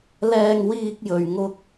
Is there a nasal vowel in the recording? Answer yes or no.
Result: no